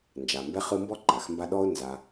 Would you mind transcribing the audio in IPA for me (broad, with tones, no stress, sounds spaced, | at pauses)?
n d͡ʒ a˩ m b ɛ˥ χ ɯ˦ m b ɔ˥ ǃ a˩ x m b a˦ ɗ ɔ˥ ʊ̯ n z a˨